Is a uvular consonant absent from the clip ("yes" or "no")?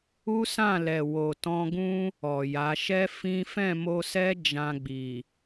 yes